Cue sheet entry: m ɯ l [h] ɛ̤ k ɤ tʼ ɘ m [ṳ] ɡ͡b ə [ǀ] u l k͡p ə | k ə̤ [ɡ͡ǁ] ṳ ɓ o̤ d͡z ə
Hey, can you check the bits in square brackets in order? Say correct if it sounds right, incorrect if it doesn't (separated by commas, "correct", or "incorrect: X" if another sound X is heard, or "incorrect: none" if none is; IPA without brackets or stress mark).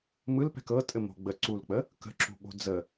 incorrect: p, incorrect: o̤, correct, incorrect: ǁ